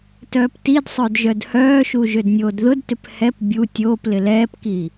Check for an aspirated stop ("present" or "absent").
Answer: absent